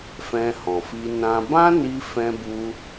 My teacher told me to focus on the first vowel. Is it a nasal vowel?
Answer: yes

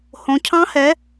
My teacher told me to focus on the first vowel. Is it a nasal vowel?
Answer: yes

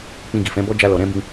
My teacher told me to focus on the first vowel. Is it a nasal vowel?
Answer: yes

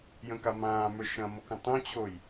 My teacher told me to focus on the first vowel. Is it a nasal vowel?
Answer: yes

